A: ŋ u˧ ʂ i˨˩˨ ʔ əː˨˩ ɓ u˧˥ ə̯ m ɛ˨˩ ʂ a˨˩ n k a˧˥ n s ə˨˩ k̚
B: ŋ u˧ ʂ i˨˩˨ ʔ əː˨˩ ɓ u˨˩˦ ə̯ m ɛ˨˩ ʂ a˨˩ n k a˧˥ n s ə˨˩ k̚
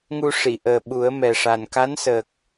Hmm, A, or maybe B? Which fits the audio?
B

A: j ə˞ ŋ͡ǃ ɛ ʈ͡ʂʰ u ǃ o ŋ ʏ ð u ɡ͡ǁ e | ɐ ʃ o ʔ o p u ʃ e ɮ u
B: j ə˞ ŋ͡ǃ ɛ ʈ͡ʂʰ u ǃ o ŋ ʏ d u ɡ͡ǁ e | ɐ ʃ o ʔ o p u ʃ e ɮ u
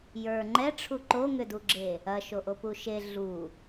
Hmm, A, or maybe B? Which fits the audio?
B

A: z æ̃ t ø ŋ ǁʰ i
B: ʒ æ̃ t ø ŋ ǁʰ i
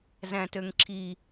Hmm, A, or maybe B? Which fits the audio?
A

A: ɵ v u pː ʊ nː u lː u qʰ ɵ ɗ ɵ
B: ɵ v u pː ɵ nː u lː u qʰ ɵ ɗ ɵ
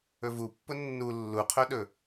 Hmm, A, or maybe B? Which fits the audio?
A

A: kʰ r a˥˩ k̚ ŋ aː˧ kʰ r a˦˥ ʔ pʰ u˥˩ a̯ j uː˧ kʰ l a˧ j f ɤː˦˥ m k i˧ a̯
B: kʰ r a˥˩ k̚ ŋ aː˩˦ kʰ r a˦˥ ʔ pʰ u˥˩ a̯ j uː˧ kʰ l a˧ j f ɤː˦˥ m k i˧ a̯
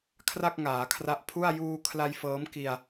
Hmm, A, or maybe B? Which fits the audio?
B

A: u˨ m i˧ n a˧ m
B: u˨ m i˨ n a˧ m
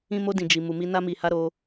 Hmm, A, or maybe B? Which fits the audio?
A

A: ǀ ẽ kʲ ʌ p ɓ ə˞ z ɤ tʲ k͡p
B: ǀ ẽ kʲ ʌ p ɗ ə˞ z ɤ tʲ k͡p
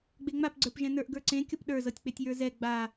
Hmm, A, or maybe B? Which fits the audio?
B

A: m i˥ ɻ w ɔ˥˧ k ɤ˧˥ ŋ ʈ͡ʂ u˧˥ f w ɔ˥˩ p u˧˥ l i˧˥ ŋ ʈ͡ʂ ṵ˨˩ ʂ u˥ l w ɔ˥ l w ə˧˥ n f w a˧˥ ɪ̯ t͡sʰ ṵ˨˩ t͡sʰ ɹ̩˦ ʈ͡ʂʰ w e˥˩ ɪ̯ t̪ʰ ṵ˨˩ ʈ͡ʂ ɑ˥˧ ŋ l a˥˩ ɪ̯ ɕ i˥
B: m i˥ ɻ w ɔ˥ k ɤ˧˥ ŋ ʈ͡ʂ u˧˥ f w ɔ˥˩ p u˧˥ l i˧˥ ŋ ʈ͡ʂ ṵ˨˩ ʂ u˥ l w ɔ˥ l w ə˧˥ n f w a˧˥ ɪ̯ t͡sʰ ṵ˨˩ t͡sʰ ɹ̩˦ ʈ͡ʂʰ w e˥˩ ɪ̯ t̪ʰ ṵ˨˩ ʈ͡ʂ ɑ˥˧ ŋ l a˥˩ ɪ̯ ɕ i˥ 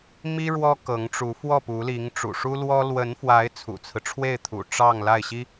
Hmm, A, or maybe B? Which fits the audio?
B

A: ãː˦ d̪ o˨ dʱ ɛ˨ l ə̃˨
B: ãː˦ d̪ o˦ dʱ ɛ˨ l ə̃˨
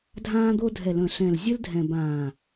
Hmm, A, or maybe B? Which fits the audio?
B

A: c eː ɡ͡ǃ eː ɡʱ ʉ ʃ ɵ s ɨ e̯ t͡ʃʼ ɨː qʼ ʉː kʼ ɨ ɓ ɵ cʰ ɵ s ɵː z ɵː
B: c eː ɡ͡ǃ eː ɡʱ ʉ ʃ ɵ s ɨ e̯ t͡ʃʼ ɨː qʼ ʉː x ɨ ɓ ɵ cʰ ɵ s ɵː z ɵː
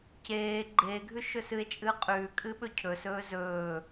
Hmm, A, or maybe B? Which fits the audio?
A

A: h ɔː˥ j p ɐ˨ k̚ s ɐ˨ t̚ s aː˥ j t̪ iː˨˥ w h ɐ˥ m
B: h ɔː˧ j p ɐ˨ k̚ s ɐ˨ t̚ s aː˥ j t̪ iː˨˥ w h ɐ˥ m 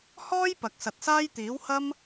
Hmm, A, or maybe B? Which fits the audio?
A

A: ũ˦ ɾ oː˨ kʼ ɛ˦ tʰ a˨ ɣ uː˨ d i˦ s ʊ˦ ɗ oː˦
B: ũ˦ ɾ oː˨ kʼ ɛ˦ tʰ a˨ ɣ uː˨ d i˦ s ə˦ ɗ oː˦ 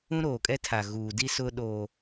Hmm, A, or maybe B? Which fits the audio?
A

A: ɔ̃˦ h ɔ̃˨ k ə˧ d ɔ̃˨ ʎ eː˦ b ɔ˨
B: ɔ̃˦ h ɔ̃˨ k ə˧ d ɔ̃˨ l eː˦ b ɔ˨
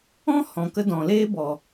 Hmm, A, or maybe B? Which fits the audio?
B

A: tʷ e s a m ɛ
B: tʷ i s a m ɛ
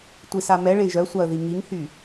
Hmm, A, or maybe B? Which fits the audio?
B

